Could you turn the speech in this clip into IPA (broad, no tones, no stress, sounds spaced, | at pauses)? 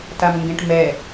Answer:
t a m ŋ ɡ ẽ ʈ m ɛ